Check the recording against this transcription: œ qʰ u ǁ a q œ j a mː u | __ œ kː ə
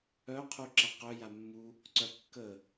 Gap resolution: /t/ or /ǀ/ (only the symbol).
ǀ